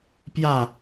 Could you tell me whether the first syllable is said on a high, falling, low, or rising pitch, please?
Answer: falling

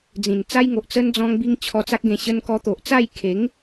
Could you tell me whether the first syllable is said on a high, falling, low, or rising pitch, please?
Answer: low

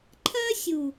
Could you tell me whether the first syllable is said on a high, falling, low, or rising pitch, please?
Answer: high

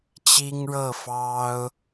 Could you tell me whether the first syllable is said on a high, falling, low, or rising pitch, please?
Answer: high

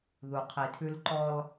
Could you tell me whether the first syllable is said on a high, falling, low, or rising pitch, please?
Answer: low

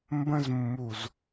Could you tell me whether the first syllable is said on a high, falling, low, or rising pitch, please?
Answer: high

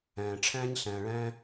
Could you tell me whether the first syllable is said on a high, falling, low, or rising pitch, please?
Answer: low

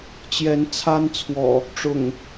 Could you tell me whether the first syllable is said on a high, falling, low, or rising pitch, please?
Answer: rising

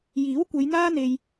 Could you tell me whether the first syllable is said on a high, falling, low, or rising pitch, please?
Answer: rising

